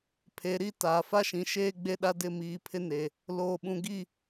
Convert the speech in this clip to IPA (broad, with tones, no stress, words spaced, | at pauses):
pʰe˨˦ɾi˦ taː˨fa˦ʃĩ˨ʃeː˦ ɡ͡be˦ɗa˦ dɪ˦˨miː˨pʰɪ˦ ne˨ | loː˨ɓũ˨ɡi˦˨